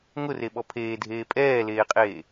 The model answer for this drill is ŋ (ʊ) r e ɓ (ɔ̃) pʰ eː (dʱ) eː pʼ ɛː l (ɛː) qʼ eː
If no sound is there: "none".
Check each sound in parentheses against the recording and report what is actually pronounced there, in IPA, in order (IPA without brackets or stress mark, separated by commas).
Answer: ʊ, ɔ, dʱ, eː